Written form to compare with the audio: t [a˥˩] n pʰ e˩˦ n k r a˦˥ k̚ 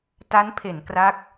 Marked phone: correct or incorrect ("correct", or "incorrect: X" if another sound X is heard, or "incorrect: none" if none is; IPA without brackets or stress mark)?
incorrect: a˦˥